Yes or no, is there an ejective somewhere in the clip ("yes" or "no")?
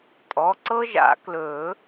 yes